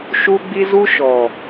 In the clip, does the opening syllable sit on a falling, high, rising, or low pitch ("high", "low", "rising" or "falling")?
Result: high